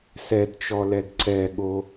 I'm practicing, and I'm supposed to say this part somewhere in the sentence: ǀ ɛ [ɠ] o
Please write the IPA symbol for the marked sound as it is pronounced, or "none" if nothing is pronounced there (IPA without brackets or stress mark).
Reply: ɠ